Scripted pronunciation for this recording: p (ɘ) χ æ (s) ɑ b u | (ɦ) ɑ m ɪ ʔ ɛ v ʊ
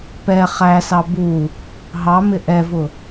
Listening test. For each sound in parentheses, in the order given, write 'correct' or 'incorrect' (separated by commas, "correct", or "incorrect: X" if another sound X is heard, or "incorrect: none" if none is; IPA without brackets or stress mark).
incorrect: ɛ, correct, correct